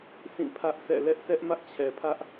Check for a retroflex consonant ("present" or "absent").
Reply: absent